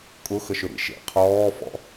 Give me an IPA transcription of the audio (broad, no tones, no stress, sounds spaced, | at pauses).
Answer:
kʼ ʊ x ə ʃ ʏ ɾ ḭ ʃ ḛ qʰ ɔː f ɔ̰